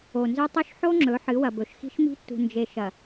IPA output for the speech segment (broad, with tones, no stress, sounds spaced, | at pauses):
o˨ n z ɵ˦ tˤ ɵ˦ ʃ ħ o˦ ŋ͡ǁ ɵ˨˦ ħ ɨ˨˦ w ɐ˨ b ɵ˨ ʃ x i̤˦ ʃ m i̤˦ tː ṳ˨ n d͡ʒ e˨ ʃ ɐ˨